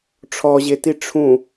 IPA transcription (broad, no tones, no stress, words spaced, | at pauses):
ʈ͡ʂʰɔʑeti ʈ͡ʂʰũ